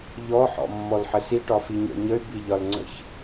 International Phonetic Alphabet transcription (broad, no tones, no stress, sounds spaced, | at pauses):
ʎ ɔ ħ ɔ̰ mː ɔ l ħ ə s i ʈ ɒ f i ɲ ɔ̰ ɲ ə y̯ b i ʎ ɒ l ŋ͡ǀ ə̰ ç